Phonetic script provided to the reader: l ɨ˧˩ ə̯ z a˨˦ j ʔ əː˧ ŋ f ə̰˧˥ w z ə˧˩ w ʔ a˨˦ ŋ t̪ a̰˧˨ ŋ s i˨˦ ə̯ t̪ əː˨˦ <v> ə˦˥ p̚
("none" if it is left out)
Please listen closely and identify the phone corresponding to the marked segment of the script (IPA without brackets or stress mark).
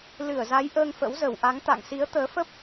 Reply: f